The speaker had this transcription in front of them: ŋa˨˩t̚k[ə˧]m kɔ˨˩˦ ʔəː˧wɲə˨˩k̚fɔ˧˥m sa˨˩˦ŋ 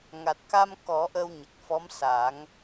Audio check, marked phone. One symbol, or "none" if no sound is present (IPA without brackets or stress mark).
a˧